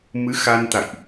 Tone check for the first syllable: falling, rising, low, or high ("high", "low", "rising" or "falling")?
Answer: rising